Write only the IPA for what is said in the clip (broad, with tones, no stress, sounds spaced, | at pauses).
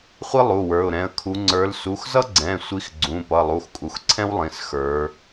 χʷ i˥ lˠ u˩˧˩ w ə˞˩˧˩ ʊ̯ ɾ ɛ̃˩˧˩ ə̯ kʰ u˨˦ ŋ͡ǀ ə˞˨˦ l s u˩˧˩ x z ʌ˥ ɡ͡ǀ ɛ̃˩˧˩ sʷ i˨˦ x ɡ͡ǀ ũ˩˧˩ p ʌ˩˧˩ lˠ u˩˧˩ x kʼ u˩˧˩ x ǀʰ ɛ̃˥ w lˠ ĩ˩˧˩ s x ə˞˨˦